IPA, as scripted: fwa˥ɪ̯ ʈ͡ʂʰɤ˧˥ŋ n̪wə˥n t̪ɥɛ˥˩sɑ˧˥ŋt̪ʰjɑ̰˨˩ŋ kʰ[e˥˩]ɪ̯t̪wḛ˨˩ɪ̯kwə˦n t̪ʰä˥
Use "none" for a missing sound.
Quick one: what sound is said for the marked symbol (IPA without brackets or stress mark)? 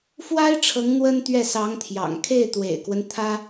e˥˩